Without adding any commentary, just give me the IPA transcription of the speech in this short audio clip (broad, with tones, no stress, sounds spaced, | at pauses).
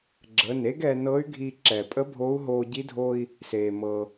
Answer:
ɡ͡ǁ ə˩˧˩ n e˧˥ ɡ ɛ˧ n ɤ˧˥ y̯ ɡʱ i˧ ǁ ɛ˩ pʼ ə˧˥ bʱ o˧˥ u̯ ɦ oː˧ ɟ i˧˥ dʱ o˧ i̯ | s eː˩ m ɤ˩